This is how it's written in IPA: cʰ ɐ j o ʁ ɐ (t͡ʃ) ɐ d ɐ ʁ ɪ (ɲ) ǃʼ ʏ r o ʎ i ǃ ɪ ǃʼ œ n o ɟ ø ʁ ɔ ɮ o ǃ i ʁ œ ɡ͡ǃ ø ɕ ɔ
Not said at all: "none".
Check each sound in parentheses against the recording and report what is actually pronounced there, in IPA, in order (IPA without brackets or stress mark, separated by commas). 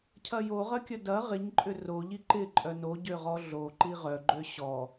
kʲ, ɲ